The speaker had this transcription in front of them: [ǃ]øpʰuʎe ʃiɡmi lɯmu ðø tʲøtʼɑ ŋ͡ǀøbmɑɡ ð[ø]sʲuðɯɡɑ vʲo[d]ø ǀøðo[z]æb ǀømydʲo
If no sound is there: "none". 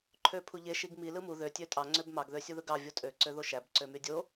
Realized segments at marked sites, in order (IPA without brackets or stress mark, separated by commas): ǃʰ, ø, tʼ, ʃ